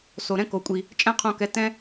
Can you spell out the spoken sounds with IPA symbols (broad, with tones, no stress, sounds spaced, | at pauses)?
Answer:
s o˨ ɾ ɛ̃˦ k o˨ kʷʼ i˨ | t͡ʃʼ ɛ̃˦ qʰ õ˧ k ɛ˨˦ t ɛ̃˦